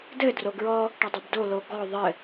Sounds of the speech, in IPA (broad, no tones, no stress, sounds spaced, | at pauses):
d ɘ d r o ɡ ɹ ɔ | ʈ ɐ dˤ o b d o l o ɡ ɔ ðˤ ɘ